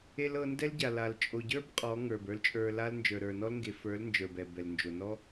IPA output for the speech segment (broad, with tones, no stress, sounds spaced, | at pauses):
e˧ l ɤ˧ n d ɛ˦ l ɟ a˨ l a˨ l t͡ʃʼ o˨ ɟ ə˞˦ b qʼ ɔ˨˦ ŋ ə˞˨ b ə˞˦ l t͡ʃʼ ə˞˧ l a˦ l n d͡ʒ ə˞˨ ɾ ə˞˨ n ɔ˦ l ŋ ɡ e˨ f ə˞˨˦ l n d͡ʒ ə˞˨ b ɛ˨ b ɛ˨ l n d͡ʒ o˨ n ɔ˦